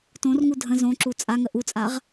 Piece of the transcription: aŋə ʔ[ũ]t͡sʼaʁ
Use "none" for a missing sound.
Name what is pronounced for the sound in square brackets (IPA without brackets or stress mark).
u